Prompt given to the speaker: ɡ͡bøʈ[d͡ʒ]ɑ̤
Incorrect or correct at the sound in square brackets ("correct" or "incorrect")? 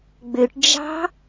correct